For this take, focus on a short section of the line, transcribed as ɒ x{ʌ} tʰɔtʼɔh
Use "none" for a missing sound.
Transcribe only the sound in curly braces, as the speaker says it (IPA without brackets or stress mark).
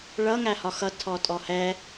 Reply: ʌ